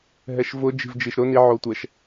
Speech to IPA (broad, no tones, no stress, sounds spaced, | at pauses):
ɦ ɛ ʃ v ʊ d͡ʒ i̤ v d͡ʒ i ʃ ɾ ʊ n i ʕ o tʷ ɛ ʃ